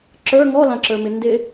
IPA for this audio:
ǁ ə˞ ŋ ɔ l ã ǁ ə˞ m ɪ n d ɪ

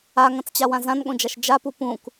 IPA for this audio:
a ŋ ɐ̃ t͡s t͡ɕ a w ã z ã n ɠ õ d͡ʒ a ʃ d͡ʒ a p u p ũ k

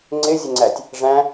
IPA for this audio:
ŋ͡ǀ ɪ zʲ ə ŋ͡ǀ æ tʲ | ʐ æ̃

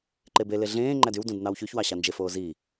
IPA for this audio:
ǃ e b e l e ɮ ẽː ŋ͡ǃ æ d y w d ũ d n ɑ w ç y ç w ɑ ɕ ɑ n d͡ʒ e f oː z i

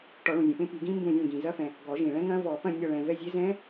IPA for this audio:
ʈ ɔ˨˩˦ ɭ ũ˩ zʲ ẽ˩ p ẽ˦˥ p i˨˩˦ ɡ ĩ˦˥ m b ũ˦˨ zʲ ẽ˦˨ ɡ ĩ˩ z ɐ˦˥ f ɛ̃˩ | ɡ ɔ˨˩˦ ʒ ĩ˩ ɭ ɛ̃˦˥ ŋ ɐ̃˦˥ v ɔ˨˩˦ p ɐ̃˦˨ nʲ ɒ˦˨ ɭ ɛ̃˩ v ɛ˦˨ zʲ e˦˥ z ɛ̃˦˥

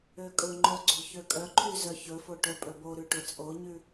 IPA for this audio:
ø kʼ ɵ ŋ͡ǃ œ ɡ͡ǀ o̤ ç ø kʼ œ ǃʰ y z œ ç ɵ f o ʈ œ pʼ ɵ b o ɾ ʉ ʈ ɵ t͡sʼ o ɲ ʉ

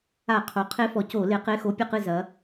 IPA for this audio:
a˧˩˧ qʰ o˩˧ qʰ e˧˥ f ɔ˩˧ c o˧˩˧ l e˩˧ q e˧˥˧ x o˧˥ pʲ ɐ˦˨ q ɨ˦˨ z ɐ˩˧

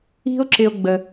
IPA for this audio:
i̤˥ o̯ ǁ ɪ˦ o̯ ɡ͡b ə˦

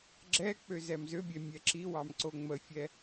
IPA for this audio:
ɡ͡ǁ ɛ k͡p ø z ɛ m z ø bʲ ɛ mʲ ɛ ǁ i w ɑ m ǀ o ŋ͡m ə fʲ ɛ

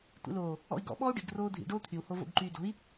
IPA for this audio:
tʷ ḭ l oː | ɔ̰ i̯ ɡ ɔ̰ ɓ ɔː u̯ ɖ i̤ ɡ r oː dʱ ḭ ɖ oː t̪ʰ y u̯ h o v o̰ ɡ ǃ yː d o̤ i̯

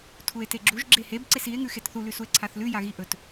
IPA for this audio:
tʰ u e̯ t e ɡ͡ǁ u ʒ ɡ͡ǁ e h e b ǀ e s i e̯ ŋ ʉ x e t θ u l ʉ s u e̯ ǀʰ a θ l ʉ j a ɣ i ʔ ɵ t

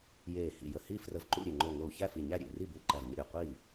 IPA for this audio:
j eː˧˩ h ḭ˧˩ j ə˧˩ h i˥˩ f r ə˧˩ v ǃ ṵ˥˩ ɾʲ e˧˩ ŋ͡ǃ o˧˩ ŋ o˧˩ u̯ ç æ˥˩ f i˧˩ ɲ æ˥˩ ɾʲ ḛ˧˩ r i˥˩ b ʉ˧˩ ǃ æ˧˩ v ɲ ə̰˥˩ ɾʲ o˧˩ qʷ iː˥˩

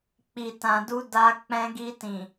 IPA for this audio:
k͡p i˨ t ã˨ d u˧ d a˧ k͡p ɛ̃˧ ɡ i˧ t ĩ˨

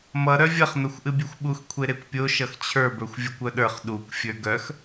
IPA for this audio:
m ʌ ɾ œ vʲ ʌ χ n ʌ xʷ ʔ ɨ bʲ e xʷ ɓ u x kʷʰ e ɾ e kʷ pʲ o ʃ ʌ x t͡ɕʰ ə˞ b ə˞ xʷ vʲ o kʷ œ ɗ ə˞ χ ɗ u kʷ fʲ ə˞ ɡ œ x

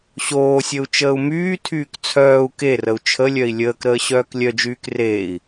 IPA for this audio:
ɕ oː sʲ ə u̯ t͡ʃ əː u̯ m yː tʰ yː k t͡sʰ œː u̯ k e r ə u̯ t͡ʃʰ ə lʲ œ i̯ lʲ əː k ɾ əː ɕ œː k lʲ œ d͡ʒ yː k r eː i̯

